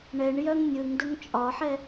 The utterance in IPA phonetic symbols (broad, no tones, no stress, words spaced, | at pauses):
ɳɛɳ jœŋnʲɯŋdəŋ t͡ʃʼɒħɛ